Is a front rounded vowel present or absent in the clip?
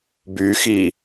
present